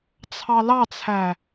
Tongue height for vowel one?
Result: low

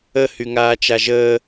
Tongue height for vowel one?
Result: mid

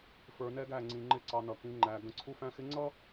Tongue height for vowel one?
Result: mid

